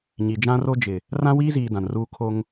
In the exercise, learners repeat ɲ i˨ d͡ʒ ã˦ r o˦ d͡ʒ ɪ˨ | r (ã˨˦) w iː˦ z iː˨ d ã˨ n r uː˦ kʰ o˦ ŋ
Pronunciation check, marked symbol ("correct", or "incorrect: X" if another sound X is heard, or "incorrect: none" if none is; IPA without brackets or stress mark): incorrect: ã˦